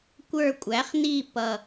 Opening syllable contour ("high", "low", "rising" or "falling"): falling